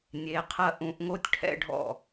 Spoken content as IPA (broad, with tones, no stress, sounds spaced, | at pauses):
nʲ e˨˦ qʰ ɐ˥˩ ʔ ũ˨˦ ʔ ŋ o˥ tʲ ʈʰ ɛ̰˥ ɖʱ ɔ̰˥˩